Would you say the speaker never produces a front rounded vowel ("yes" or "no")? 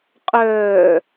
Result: no